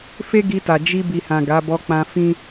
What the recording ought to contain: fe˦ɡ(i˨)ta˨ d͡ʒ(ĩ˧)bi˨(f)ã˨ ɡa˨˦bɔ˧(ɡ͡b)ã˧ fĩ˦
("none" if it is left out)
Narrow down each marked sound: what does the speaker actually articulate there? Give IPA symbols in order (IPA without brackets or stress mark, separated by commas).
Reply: i˧, i˧, h, k͡p